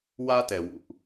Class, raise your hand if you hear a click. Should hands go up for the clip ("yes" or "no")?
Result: no